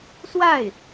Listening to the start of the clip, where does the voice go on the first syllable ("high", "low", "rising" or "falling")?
falling